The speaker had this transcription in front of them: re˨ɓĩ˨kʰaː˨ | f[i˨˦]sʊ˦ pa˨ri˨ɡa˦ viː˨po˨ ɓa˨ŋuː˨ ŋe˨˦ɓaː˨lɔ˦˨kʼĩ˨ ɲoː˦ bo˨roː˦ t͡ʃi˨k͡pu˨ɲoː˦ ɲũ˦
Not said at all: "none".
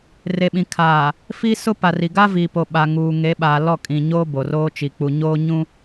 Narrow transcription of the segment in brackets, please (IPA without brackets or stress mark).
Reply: i˦